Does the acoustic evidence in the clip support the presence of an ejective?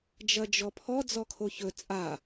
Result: yes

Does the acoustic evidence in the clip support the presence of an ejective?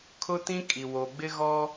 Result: yes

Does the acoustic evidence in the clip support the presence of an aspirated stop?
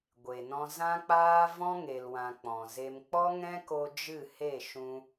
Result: no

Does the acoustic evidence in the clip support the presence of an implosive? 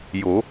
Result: no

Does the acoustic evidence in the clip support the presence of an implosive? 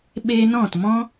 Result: yes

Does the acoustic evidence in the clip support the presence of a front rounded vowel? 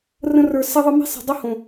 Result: yes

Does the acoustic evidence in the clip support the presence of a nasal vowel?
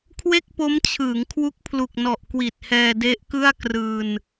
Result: no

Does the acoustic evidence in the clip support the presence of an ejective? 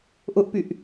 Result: no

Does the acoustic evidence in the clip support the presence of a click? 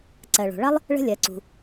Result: yes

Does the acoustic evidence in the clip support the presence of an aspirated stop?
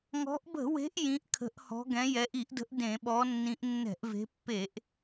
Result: yes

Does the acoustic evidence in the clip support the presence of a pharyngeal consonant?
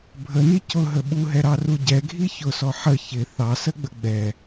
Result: yes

